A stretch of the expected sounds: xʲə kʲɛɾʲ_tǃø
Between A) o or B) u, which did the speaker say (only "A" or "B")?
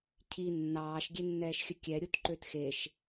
B